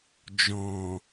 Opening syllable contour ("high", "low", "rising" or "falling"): low